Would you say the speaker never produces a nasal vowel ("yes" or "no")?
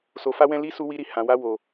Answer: no